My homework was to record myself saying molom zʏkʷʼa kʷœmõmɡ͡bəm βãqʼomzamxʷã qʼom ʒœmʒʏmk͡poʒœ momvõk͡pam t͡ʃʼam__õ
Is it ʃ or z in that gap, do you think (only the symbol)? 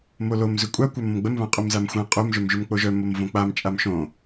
ʃ